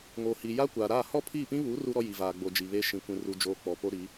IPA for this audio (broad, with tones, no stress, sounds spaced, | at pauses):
ŋ oː˨ h i˨ j aː˦ kʷ aː˨ ɾ aː˦˨ h ɔ˦ pʰ iː˦˨ p ĩ˦ β u˨˦ r u˦ ɾ ɔ˦ j i˨ v aː˨ ɡ͡b o˨ d͡ʒ i˨ β e˦ ʃ ĩ˨ kʷ ĩ˨ r u˨ d͡ʒ oː˨ k͡p ɔ˨ p o˦ ɾ i˨˦